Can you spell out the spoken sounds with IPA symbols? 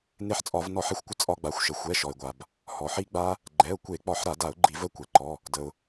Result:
ne˧ħt͡sʼɒ˧˩˧v nɔ˧˩˧ħe˧xʷkʷə˧ t͡sʼɒ˧ɡ͡ba˩˥xʷʃə˩ xʷɛ˩˧˩ʃɔ˩ɪ̯ɡʷa˩b | hɔ˩ħi˦˥ɡ͡ba˦˥ | ɡ͡ǃɛ˩˧˩ʊ̯kʷe˧˩˧k͡pɒ˧˩˧ħ ɾa˧˩˧da˧˩˧ʊ̯ ɡ͡ǃi˧˩˧v ə˦˥kʷɛ˩ǃɔ˩˧˩ | də˩ʊ̯

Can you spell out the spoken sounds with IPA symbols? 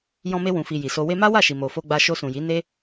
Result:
jɔ̃˧me˧ wũ˨fi˨ ji˨so˧ we˧ma˦wa˦˨ ʃi˨mo˨fo˧ɡ͡ba˧ ʃo˧sũ˨ji˨˦ ne˦

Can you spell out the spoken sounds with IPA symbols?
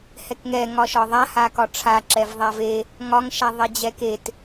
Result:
hɛkŋɛ ŋɒʃɒðˤa hakɒʈ͡ʂʰa ǁɛvðˤave | ŋɒŋ ʃaðˤed͡ʑɛket

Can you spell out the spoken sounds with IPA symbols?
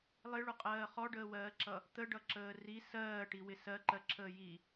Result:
lˠɪɭʊqʼɜː χɔɖəːwɜːǁʌ | t̪əɖʌǁəː ri sɜːʈiwɪ sɜǃɜǁʰəː ji

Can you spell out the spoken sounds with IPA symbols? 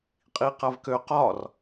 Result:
qʼiqavkø qɒr

